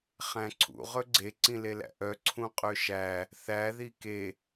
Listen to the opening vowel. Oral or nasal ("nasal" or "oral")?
nasal